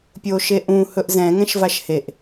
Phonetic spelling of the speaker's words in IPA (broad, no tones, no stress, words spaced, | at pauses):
pʲoʃeʔũ hɵʔzɛ̃ ŋɛ̃ʃvaʃheʔ